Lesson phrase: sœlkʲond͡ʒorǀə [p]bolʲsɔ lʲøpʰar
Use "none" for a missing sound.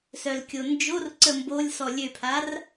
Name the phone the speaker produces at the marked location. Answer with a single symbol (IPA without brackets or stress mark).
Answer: m